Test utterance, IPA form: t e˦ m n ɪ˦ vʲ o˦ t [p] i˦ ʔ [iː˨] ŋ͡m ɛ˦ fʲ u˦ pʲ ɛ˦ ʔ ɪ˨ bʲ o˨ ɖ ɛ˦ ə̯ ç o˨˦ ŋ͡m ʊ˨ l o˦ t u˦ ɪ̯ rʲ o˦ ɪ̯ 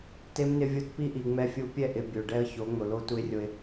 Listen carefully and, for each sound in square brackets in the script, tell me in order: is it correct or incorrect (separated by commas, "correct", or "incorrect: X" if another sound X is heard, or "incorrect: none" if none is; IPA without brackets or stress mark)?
correct, incorrect: i˨